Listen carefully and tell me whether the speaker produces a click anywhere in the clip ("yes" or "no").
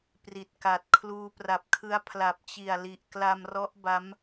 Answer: no